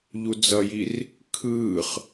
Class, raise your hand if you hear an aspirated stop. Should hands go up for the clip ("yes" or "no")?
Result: yes